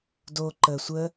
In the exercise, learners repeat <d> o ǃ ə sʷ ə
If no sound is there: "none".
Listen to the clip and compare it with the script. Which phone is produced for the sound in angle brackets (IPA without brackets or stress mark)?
d